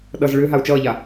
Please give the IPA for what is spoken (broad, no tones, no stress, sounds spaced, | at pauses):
ɗ ʌ z ɭ ʏː ɦ a u̯ t͡ʃ ʌː ʎ a